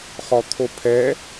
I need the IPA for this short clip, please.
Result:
χ ɔ t̪ʰ o pʰ ɛ

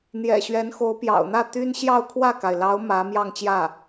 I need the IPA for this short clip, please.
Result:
n̪ j ɛ̰˨˩ ɕ ɥ ɛ˧˥ n x o˧˥ ʊ̯ p j ɑ̰˨˩ ʊ̯ n̪ ä˥˩ t̪ y˥ n ɕ j ɑ˥˧ ʊ̯ kʰ w ä˥˩ k a˩ ɪ̯ l ɑ˧˥ ʊ̯ m ä˧˥ m j ɑ˥˧ ŋ t͡ɕ j ä˥˩

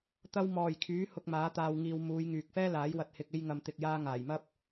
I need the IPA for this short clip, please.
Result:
t̪ ɐ˧ w m ɔː˨˩ j kʰ yː˨˥ h ʊ˧ k̚ m aː˨˥ t̪ aː˧ w ŋ iː˧ w m uː˨˧ j ŋ yː˨ k̚ f ɛː˥ l aː˨˥ j w ɐ˧ t̚ h ɪ˧ k̚ e˧ j ŋ ɐ˨ m t̪ ɪ˨ k̚ j aː˧ ŋ aː˨˩ j m ɐ˥ p̚

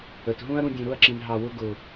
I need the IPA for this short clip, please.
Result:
ə˨ t ɦ ũ˦ ɐ̯ ɾ ũ˧ dʲ ũ˨ ɾ ʊ˦˨ ɐ̯ ǁ ĩ˨ n ɦ ɑ˧ w ʊ˦ ɡ ʊ˨

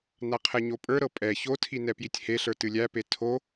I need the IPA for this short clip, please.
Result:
n a qʰ ɛ ɲ o pʼ ə˞ ɾ ɤ pʼ ɛ ç o tʰ i n ɛ p j i tʲ h e ɬ ə˞ t ɨ lʲ æ p e tʰ o

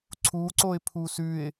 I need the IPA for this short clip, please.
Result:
ǀʰ u ǀ o ɪ̯ pʰ u s ʉ ɪ̯

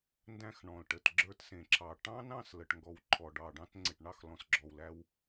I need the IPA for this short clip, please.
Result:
n d æ̃˧ x ɳ ɔ̃˨ l ʈ ə˨ t ɡ͡ǁ ə˞˧ t s ẽ˨ ǁʰ ɑ˨ ʈ ɑ̃˦ n ɑ̃˦˨ s l ə˨ ʈ ŋ ɡ ɔ˨ w ǃʰ ɔ˨ ɖ ɑ˨ ɖ ɑ̃˧ t ŋ͡ǀ e˨ ʈ ɳ ɑ˦˨ x l ɔ̃˨ s ɡ͡ǁ ɔ˨ w l æ˧ w

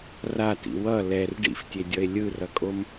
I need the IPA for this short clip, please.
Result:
r a t ḭ w ʌ l ɛ r ɖ ḭ f tʲ e dʲ ʌ e̯ lʲ ɯ r ʌ kʼ o m

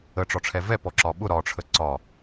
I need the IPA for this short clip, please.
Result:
ə ʈ͡ʂ ɒ ʈ͡ʂʰ ɛ v ɛ p ɔ ǁ ɒ ɓ ʊ ɾ ɒ ʈ͡ʂʰ ə ǀ ɒ

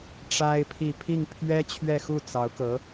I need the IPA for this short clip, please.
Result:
ʈ͡ʂ a˥ ɪ̯ pʰ i˥˧ pʰ i˥˩ ŋ pʰ ɥ ɛ˥ t͡ɕʰ ɥ ɛ˥˧ x u˥˩ t͡s ɑ˧˥ ʊ̯ k ɤ˧˥

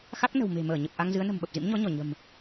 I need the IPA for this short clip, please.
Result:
x a˦˥ k̚ n ə̤˨˩ w m e̤˨˩ m əː˧˩ ɲ ə˨˩ p̚ ʔ a˧ ŋ z ɨ˨˦ ə̯ n ə̤˨˩ m ɓ ə˨˩ p̚ z ḭ˧˥ m ɲ ɔ˨˦ ɲ ɔ˧˩ ɲ ə̤˨˩ m

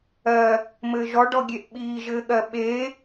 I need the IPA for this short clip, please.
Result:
ɜ | m ɘː ʒ ɔ ɖ ɔ ɡʲ e ʔ ɓ iː ʒ ɘː ɠ ɜ ɓ e

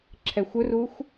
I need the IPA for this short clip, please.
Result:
ǁʰ ɛ xʷ ɵ r u xʷ

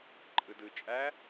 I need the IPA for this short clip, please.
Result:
ǃʼ ɯ d ɯ t͡ʃʼ æ

